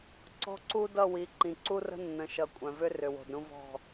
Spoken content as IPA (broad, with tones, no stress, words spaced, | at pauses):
ǀɔ̤˦ǀu˦dʌ˦˨wi˨˦ ǃĩ˨ ǀu˦rə̤˦nːə̃˨ʃʌ˨ kʷʼœ̃˨vʏ˦ rʏ˨wo̤˨dɾũ˦vɔ̤˦˨